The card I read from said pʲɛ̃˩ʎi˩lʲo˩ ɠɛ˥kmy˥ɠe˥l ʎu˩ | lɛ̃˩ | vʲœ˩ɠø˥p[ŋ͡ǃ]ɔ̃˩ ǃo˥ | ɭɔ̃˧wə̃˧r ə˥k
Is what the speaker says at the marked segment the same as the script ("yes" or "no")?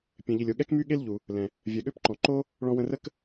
no